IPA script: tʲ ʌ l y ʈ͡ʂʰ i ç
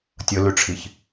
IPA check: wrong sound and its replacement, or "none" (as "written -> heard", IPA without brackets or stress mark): ʌ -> ə